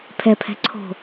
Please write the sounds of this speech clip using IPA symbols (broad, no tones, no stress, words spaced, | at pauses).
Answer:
pʰɛpʰɛ̤ ǀʰo̤